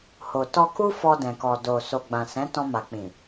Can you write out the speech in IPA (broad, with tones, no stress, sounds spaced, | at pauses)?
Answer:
h o˨ t ɔ˧ k u˦ f ɔ˧ d ɛ̃˨ k ɔ˨ d o˨ s o˨ ɡ͡b ã˨ s ɛ̃˨˦ t ɔ̃˧ m a˨ k͡p ĩ˨